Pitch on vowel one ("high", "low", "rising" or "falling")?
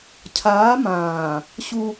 rising